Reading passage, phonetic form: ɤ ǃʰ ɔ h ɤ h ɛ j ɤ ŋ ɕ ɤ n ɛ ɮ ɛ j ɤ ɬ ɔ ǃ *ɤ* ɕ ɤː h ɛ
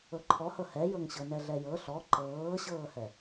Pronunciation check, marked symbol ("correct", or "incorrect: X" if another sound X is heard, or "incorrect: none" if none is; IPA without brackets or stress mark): incorrect: ɤː